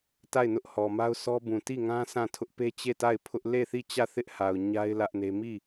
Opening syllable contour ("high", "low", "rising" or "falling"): falling